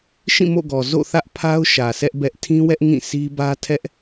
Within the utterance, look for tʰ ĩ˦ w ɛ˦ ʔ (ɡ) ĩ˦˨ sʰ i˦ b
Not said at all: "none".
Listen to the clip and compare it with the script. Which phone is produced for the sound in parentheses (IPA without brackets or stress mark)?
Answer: ŋ